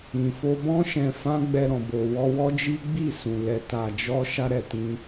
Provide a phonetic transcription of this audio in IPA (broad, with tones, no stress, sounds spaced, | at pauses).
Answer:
ĩ˨ f o˧ b ɔ̃˦ ʃ ɛ̃˧ f ã˦ ɡ͡b ɛ˧ ɾ ɔ̃˨ b o˨ w ɔ˧ w ɔ˦ d͡ʒ i˦ ɡ͡b i˦˨ s ũ˨ l ɛ˨ t a˨ d͡ʒ ɔ˧ ʃ a˧ ɾ ɛ˨ t ĩ˧